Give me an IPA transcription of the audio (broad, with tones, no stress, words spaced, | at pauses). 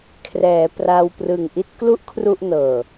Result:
kʰrɛː˩˦pra˧w prɯ˨˩ŋʔi˥˩t̚klu˥˩ʔ kʰru˥˩ʔnɤː˨˩